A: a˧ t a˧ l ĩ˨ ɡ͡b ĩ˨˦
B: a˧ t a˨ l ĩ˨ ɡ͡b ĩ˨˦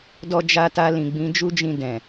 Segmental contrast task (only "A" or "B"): A